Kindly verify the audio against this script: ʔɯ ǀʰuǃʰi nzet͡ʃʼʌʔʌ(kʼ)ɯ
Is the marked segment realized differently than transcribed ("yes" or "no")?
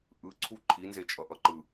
yes